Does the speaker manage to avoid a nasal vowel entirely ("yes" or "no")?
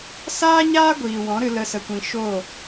no